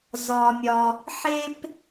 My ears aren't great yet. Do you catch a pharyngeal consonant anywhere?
yes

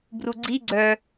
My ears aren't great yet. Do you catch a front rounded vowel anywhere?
yes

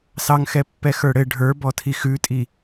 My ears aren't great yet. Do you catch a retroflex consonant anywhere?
yes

